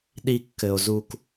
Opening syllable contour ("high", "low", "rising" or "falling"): high